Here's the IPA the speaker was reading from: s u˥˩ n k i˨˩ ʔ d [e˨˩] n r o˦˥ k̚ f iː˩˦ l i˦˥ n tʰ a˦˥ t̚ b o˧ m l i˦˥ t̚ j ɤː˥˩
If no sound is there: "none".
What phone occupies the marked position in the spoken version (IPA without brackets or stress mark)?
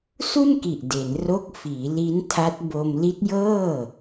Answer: e˩˦